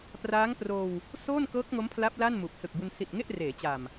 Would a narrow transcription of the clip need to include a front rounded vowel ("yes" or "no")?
no